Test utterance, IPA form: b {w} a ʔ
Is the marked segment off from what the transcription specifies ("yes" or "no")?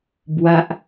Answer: no